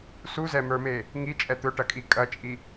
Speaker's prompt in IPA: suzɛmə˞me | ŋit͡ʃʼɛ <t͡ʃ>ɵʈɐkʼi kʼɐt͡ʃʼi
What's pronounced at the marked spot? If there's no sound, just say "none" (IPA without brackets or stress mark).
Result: t̪